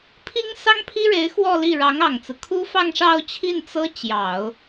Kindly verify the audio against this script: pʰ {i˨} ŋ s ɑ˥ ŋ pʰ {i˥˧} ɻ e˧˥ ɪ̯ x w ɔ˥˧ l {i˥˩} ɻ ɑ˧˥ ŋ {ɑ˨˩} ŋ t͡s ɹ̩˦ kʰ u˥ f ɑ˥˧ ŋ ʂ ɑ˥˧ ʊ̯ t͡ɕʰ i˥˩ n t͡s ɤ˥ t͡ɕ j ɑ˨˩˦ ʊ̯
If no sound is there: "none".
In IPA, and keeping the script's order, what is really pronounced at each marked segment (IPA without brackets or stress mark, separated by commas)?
i˥, i˥, i˥˩, ɑ˨˩